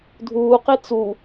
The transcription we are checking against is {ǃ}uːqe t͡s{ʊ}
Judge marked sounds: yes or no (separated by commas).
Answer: no, no